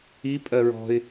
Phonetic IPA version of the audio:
i pʼ ɜ ɹ ɔ̤ ɪ̯

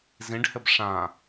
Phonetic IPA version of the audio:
z ĩ ɖ h ɘ b ʂ ã

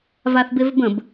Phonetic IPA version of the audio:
v a θ b e v b ə̃ b

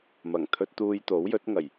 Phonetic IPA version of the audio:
m ɐ˨˩ ŋ t̪ʰ ɵ˧ t̚ t̪ uː˧ j t̪ o˨˥ w j ɵ˨˥ t̚ ŋ ɐ˨˩ j

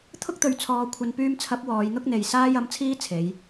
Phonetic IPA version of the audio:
t̪ʰ ʊ˥ k̚ t̪ ɵ˨˧ ɥ t͡sʰ ɔː˨ kʷʰ ɐ˨ n p yː˧ m t͡sʰ ɐ˨˥ p̚ w ɔː˨˧ j n̪ ʊ˥ k̚ n̪ e˨ j s aː˧ j ɐ˨˥ m t͡sʰ iː˥ t͡sʰ e˨˧ j

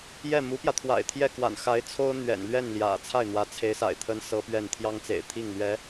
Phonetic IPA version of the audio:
j ɛ˥˩ m u˧˥ p j ä˧ t̪ʰ w a̰˨˩ ɪ̯ t̪ʰ j ɛ˥˩ k w a̰˨˩ n x a˧˥ ɪ̯ t͡sʰ o˥ ʊ̯ n̪ ɥ ɛ̰˨˩ n l ɥ ɛ˥˩ n l j ä̰˨˩ t͡sʰ a˥˩ ɪ̯ n̪ w ä˧˥ t͡sʰ e˧˥ ɪ̯ s a̰˨˩ ɪ̯ t̪ʰ ə˥ n s ɤ˥ p ɥ ɛ˥˩ n t̪ʰ j ɑ˥ ŋ t͡s ḛ˨˩ ɪ̯ t̪ʰ i˥˩ ŋ l ɥ ɛ˧˥

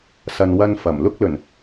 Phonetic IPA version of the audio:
s ɐ˨ n w ɐ˧ n f ɐ˨˩ m l ʊ˥ k̚ l ɵ˨˩ n

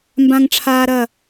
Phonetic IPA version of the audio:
m b ã˥ ŋ ʈ͡ʂʰ aː˥ ɾ ɐ˥˧

